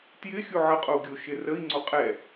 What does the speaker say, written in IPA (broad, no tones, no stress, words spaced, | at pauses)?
tjɪ xʲuʕəqʼou̯ ɡʲoʃɪrəi̯ ŋ͡ǀoqʼɛ